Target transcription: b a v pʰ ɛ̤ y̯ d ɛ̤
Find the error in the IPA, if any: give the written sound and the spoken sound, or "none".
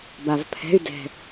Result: none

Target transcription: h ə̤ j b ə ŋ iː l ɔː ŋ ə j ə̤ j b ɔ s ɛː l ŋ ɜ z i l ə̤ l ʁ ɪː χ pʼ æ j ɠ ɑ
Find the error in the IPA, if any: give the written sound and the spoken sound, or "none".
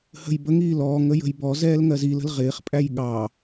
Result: s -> z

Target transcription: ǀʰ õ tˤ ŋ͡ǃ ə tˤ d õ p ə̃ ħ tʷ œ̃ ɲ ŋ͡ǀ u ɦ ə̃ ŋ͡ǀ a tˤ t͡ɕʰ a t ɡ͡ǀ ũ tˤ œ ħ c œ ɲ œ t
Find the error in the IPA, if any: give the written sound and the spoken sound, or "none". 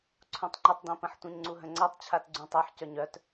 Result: none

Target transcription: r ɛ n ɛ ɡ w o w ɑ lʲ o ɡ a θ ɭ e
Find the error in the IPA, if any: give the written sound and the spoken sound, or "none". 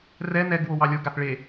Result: none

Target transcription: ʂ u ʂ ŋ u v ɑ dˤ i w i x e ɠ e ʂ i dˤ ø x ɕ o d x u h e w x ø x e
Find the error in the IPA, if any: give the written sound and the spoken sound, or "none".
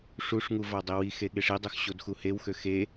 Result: none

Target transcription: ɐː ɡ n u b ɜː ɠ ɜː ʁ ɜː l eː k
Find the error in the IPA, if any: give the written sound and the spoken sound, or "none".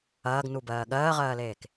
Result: none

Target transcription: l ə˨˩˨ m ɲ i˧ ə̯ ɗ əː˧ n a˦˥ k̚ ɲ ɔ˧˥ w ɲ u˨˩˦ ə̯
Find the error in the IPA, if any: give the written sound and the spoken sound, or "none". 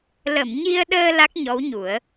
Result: n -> l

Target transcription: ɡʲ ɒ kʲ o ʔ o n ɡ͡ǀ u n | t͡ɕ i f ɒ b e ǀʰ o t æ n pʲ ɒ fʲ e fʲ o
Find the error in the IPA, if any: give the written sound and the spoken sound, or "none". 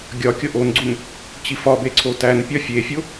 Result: none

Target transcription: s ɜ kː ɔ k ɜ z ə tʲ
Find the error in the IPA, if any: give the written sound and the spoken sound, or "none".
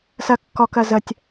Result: none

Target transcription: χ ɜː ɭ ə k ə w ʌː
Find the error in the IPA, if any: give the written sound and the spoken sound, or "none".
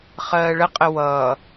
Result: k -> qʼ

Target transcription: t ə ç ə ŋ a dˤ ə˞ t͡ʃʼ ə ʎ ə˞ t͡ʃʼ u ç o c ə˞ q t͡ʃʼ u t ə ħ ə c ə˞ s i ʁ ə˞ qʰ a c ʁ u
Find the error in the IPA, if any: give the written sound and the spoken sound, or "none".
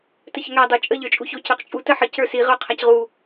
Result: none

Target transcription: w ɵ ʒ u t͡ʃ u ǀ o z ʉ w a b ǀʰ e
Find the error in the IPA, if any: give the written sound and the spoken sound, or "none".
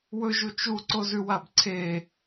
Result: none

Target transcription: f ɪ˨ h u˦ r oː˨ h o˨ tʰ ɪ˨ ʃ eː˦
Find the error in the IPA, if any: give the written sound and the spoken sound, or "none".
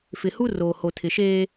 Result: none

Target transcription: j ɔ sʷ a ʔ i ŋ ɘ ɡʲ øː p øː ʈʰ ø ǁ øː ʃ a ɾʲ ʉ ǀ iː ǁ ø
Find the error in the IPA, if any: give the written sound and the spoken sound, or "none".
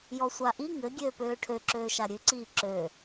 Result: none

